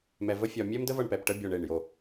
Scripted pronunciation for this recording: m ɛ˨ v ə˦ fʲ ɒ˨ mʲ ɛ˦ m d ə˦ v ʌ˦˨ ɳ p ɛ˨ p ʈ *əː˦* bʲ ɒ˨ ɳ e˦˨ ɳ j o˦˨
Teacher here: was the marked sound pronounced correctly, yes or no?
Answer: no